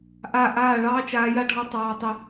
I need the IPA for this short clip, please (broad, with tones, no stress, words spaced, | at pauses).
ʔa˦˨ ʔaː˦˨ ɭɑː˦t͡ʃaː˧ja˦ɖʱɔ˧ tˤɑː˧ tˤə˧